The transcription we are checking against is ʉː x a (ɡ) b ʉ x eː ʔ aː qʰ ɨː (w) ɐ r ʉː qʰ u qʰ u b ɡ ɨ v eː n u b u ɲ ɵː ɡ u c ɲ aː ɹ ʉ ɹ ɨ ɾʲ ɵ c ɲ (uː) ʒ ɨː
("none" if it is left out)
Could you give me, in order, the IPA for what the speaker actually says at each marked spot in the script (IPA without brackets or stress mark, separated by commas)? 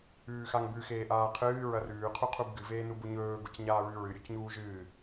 ŋ, ɹ, uː